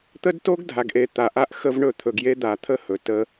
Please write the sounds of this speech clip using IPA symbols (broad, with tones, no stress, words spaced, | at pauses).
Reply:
t̪ə˦dto˦ɡdʱa˨ɡʔe˨ t̪a˨ʔa˦ʔ xə˦vɳɵ˦˨ t̪ʰɵ˨ɡje˦ d̪a˨t̪ʰə˦hɵ˨ tə˦